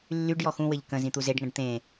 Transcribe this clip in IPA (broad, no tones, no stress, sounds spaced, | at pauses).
lː y ɖ j ɔ x ũ w ɘ ʎ k ə̃ z ĩ t̪ u z e ɖ ŋ ə̃ ɖ t̪ ẽ